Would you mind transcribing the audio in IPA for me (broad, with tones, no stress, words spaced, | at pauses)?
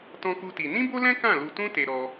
tɔ̃˦ku˦ti˧ nĩ˦bo˦lɛ̃˦ kã˦˨lu˧tũ˦ te˦ɾɔ˦